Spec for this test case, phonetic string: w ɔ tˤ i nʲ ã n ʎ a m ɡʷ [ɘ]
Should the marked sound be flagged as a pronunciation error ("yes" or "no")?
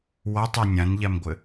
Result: no